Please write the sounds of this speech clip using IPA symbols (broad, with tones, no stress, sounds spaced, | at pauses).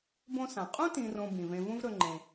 b õ˦ s ã˩ qʼ ũ˥ t ĩ˨ r õ˨ b ĩ˩ v ẽ˨ v ũ˦ v ɾ ɵ˨ ŋ͡ǃ ẽ˩